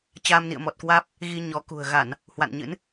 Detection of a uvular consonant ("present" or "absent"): absent